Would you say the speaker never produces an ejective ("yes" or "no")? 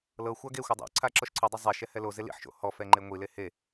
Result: yes